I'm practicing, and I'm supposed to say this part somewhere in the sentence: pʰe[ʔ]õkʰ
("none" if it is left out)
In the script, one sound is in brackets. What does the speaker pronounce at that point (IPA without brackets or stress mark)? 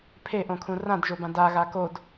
ʔ